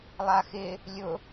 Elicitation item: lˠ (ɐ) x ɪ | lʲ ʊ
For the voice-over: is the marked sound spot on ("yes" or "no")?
no